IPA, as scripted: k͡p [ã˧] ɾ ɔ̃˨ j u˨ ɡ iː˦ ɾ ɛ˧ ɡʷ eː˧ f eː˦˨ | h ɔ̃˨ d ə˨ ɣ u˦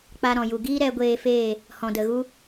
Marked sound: incorrect: a˧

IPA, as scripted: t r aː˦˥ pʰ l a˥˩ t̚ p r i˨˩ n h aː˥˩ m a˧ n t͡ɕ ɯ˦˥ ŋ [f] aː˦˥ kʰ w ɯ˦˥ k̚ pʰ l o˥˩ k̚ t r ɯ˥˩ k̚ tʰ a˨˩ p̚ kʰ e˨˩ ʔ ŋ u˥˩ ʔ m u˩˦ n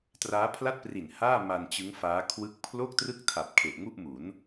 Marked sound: correct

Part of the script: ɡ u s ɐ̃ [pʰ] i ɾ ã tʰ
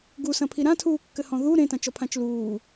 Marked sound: correct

